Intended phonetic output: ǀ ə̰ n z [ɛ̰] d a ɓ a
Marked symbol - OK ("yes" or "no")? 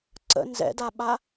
yes